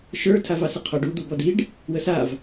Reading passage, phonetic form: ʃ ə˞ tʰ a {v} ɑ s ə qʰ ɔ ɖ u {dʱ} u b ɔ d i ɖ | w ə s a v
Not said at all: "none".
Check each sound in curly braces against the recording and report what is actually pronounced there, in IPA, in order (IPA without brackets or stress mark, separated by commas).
v, d̪